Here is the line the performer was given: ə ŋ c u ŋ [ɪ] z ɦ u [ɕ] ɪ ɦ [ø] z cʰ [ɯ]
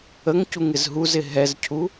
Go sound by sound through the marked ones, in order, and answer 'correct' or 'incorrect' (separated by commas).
correct, incorrect, incorrect, incorrect